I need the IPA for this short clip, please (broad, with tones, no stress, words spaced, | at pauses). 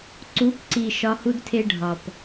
ǀu˨˦pǀi˨ ʃɒ˦hu˦dtʰe˦ ɖʱɒ˨p